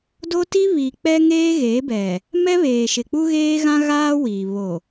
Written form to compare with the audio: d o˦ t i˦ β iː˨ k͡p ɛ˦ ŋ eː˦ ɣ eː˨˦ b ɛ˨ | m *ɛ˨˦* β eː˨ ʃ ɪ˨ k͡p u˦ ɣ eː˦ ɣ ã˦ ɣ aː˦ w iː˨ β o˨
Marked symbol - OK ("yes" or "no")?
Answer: no